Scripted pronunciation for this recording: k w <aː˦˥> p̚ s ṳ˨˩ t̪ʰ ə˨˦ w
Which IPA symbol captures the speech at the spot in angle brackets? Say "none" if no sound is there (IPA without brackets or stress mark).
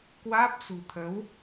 aː˦˥